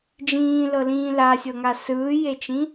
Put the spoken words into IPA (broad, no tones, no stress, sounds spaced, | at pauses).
d͡ʒ ĩː l ɤ l ĩː l a sʲ ɤ ŋ a s ɯː j e t͡ʃ ĩ